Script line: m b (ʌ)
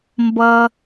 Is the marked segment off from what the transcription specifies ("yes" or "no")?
no